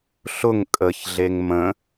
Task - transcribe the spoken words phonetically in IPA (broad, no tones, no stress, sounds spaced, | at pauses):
ɬ ʊ ŋ kʼ ə ç ɮ e ŋ m ə̃